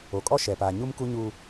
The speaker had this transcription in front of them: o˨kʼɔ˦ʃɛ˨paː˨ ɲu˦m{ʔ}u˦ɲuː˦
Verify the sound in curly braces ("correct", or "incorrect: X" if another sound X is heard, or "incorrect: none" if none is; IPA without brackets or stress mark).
incorrect: k